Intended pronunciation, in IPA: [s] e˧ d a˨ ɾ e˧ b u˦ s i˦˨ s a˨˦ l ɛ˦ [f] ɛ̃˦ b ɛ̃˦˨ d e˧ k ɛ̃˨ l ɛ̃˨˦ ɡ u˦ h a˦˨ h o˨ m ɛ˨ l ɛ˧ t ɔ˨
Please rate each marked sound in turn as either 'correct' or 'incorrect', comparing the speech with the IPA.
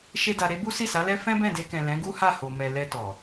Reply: incorrect, correct

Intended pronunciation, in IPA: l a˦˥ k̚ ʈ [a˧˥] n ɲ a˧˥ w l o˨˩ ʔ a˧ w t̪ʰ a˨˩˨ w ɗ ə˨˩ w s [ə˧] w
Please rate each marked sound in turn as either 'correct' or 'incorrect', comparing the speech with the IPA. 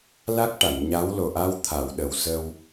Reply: incorrect, correct

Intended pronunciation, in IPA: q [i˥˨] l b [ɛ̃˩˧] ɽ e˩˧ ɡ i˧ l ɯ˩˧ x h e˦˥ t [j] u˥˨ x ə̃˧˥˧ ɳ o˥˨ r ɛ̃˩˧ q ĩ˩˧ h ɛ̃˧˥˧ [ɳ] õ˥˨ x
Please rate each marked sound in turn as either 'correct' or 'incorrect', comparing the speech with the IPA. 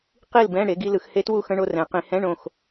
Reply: correct, incorrect, incorrect, correct

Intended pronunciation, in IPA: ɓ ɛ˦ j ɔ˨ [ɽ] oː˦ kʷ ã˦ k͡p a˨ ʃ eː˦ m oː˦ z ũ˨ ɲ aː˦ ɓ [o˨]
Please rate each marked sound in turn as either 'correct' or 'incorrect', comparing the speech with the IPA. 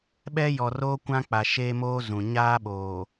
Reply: incorrect, incorrect

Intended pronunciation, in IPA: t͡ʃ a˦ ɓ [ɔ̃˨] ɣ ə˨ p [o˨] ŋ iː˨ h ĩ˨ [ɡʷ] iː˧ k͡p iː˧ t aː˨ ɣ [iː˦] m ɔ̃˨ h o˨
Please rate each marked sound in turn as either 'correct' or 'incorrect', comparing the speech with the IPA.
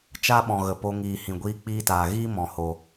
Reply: correct, incorrect, correct, correct

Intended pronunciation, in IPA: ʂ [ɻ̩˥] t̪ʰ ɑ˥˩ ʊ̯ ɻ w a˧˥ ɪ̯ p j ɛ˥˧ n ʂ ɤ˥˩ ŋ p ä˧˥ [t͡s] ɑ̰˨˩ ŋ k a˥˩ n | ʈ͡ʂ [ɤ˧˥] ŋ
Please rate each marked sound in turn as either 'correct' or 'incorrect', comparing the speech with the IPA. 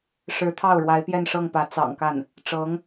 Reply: incorrect, correct, correct

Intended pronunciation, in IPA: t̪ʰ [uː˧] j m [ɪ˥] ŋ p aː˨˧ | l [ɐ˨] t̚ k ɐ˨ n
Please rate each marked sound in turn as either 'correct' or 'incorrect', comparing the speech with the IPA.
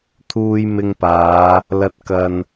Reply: correct, incorrect, correct

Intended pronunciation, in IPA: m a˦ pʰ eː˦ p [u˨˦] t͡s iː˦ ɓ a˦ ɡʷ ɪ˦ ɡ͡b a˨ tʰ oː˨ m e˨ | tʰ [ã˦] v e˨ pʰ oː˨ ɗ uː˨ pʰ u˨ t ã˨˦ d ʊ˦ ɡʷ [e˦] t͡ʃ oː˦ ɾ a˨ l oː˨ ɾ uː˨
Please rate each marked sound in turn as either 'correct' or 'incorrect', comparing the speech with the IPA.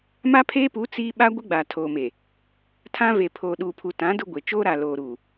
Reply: correct, correct, incorrect

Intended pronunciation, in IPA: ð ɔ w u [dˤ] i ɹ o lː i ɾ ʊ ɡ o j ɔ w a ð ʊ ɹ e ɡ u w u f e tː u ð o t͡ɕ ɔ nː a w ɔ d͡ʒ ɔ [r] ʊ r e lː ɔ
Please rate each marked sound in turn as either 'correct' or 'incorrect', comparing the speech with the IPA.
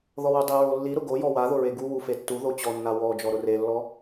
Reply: correct, incorrect

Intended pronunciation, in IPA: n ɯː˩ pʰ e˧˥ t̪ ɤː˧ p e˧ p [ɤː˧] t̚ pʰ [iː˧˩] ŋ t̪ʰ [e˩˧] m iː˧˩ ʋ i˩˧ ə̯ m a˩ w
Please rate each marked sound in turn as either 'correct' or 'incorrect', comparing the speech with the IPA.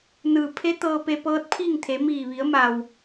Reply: incorrect, incorrect, correct

